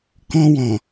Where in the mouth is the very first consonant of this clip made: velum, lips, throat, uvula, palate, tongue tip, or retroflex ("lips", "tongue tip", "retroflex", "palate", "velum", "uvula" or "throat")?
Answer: velum